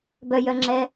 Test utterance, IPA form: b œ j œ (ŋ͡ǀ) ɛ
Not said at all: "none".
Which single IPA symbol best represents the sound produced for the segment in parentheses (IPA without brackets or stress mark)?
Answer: ŋ͡ǁ